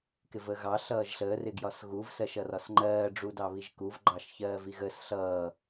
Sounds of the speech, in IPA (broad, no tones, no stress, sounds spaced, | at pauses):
k ɪ v əː ɣ ɑ ɬ ʌː ʒ ɬ əː r ɪ ɡ j ɒ s ɣ u v s ɜ ʃ ʌ r ɒ s ŋ͡ǃ ɜː ɖ͡ʐ u d ɑ β i ʒ k u v ɡ͡ǃ ɑ ʃ ç ɜː v i ɣ əː s ɬ ʌː